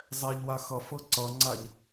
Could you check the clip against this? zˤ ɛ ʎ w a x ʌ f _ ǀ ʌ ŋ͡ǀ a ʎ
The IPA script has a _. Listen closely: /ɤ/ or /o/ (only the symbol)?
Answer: ɤ